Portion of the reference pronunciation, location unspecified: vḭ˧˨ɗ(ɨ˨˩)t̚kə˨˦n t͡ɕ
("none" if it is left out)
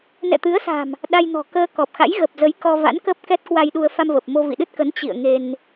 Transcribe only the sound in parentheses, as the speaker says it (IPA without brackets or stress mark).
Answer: ɨ˦˥